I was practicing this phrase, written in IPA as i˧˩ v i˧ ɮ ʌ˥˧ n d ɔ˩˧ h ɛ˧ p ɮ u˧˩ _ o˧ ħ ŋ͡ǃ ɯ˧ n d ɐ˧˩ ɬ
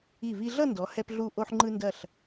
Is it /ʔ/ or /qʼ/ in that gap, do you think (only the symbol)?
ʔ